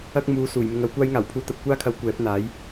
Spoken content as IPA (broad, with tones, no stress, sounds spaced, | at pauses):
ɐ˧ k̚ m uː˨˧ s uː˨˩ j m ɪ˧ ŋ ɐ˨˥ w kʷ aː˥ j ŋ aː˨˩ w pʰ uː˧ t̪ ɐ˧ p̚ kʷ aː˥ kʰ ɐ˨˥ w kʷ ɛː˨˥ p̚ n̪ aː˨˥ j